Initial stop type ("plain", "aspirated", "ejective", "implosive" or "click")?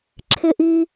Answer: click